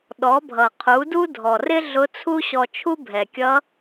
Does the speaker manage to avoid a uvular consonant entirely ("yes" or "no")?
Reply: no